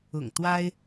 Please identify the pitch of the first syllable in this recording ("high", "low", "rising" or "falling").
low